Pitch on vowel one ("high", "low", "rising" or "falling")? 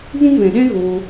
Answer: high